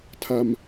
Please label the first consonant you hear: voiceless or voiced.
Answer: voiceless